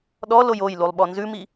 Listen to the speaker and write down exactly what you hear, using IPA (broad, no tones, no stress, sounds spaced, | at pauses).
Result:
ɗ ɔ l o j o j l u lˠ ɓ ɔ n z ʉ m i